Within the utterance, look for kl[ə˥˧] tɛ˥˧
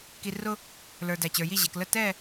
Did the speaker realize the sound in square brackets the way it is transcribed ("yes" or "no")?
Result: yes